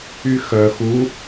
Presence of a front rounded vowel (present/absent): present